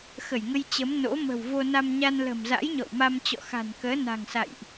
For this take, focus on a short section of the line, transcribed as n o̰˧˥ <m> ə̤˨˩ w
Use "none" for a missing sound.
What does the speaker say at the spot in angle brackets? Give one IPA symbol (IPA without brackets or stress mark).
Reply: m